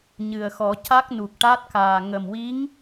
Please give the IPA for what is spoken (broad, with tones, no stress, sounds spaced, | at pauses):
ɲ ɨ˨˩ ə̯ x ɔ˨˩˦ c a˦˥ k̚ n u˨˩ k̚ ʈ a˦˥ t̚ k aː˨˩ ŋ ə˨˩ m w i˧˥ ŋ